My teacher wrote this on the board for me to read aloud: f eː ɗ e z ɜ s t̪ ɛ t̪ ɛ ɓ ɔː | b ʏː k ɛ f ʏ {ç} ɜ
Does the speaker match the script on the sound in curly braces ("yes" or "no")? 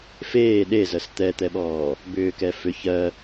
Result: yes